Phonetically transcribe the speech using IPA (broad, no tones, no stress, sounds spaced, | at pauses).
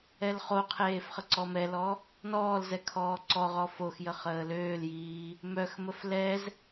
ɛ l χ o qʰ eː f χ ə ǀ ɔ m ɛ l ɔ | n ɔː l z ɛ kʰ ɔː ǀ ɔ ʁ ɔ f o x j ə χ əː l øː l j iː | m œ x m ə f l ɛ z